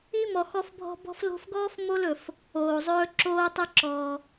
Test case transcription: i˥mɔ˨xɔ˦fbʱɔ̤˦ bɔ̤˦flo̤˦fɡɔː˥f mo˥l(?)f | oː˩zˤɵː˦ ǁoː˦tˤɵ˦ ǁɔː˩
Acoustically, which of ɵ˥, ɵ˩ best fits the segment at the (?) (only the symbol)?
ɵ˩